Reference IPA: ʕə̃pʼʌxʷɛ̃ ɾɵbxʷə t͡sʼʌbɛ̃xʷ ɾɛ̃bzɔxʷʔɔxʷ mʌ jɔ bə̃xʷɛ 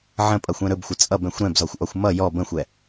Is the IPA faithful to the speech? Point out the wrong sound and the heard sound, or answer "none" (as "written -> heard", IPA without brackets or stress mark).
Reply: none